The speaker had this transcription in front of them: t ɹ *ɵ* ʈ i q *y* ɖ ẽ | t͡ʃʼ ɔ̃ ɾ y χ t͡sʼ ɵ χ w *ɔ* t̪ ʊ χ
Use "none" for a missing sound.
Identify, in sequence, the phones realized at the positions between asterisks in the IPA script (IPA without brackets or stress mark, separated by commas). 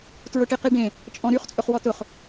ʊ, i, ɔ